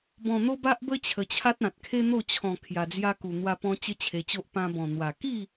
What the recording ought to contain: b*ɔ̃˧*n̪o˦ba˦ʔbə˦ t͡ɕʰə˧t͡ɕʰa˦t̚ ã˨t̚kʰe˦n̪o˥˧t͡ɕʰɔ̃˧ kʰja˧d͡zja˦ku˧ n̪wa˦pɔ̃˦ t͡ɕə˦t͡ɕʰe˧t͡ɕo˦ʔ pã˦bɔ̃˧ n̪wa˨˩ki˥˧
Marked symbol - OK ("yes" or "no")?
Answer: yes